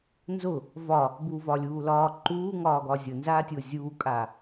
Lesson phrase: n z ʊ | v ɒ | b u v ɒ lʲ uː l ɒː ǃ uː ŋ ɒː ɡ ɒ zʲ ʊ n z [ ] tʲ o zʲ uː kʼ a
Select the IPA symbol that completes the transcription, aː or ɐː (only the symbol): aː